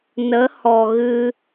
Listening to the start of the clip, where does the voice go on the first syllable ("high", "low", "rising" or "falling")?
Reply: rising